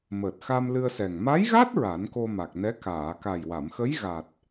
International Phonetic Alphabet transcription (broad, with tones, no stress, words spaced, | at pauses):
məː˨˩t̚xa˧m lɨ˧ə̯sɛ˨˩ŋ ma˧˥jɣa˦˥t̚ ɹa˨˩˦nko˧ ma˨˩k̚nɛ˧˥ kaː˨˩˨ka˨˩jwa˨˩˨mxə˧˥j ɣa˨˩t̚